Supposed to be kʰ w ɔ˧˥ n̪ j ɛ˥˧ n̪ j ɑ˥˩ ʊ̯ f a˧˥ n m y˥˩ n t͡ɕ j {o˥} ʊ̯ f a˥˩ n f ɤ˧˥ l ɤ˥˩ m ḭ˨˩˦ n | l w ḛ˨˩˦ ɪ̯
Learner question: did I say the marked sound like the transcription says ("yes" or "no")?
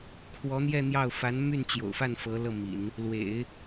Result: no